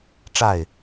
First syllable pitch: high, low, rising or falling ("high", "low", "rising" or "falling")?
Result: falling